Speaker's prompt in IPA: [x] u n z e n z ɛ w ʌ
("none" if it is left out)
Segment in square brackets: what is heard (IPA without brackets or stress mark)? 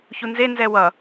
ç